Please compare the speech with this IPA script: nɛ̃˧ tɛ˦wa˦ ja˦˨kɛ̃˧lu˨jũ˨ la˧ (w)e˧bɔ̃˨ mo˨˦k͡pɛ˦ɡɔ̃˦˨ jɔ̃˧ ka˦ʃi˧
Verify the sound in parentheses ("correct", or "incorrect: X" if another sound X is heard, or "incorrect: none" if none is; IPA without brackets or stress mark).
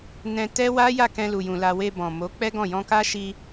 correct